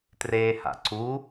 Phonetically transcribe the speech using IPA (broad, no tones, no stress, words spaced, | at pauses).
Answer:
treːha̰ǀu